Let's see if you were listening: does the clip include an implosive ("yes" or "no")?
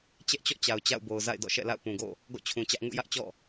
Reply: no